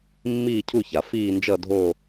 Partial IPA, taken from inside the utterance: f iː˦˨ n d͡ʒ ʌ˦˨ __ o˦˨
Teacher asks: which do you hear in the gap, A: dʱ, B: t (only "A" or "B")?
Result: A